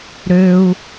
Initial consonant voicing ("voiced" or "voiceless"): voiced